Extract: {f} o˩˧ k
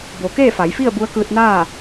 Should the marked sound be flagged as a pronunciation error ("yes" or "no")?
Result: yes